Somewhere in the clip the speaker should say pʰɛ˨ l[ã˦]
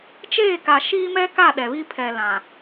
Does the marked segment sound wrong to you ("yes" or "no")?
yes